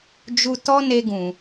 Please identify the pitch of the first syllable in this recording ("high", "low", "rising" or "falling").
high